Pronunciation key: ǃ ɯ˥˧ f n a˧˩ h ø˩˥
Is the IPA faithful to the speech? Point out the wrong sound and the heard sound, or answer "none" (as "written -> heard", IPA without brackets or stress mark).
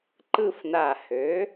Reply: none